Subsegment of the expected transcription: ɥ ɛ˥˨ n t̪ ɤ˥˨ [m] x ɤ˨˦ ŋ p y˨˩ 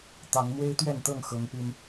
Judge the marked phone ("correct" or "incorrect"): incorrect